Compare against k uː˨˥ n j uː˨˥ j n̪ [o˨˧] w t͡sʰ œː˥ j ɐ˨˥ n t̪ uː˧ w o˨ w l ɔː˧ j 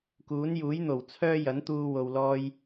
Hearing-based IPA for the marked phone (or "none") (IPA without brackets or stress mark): o˨˩